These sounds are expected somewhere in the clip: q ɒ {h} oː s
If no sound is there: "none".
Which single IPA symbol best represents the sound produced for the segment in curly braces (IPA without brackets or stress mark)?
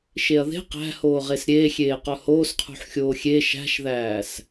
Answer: h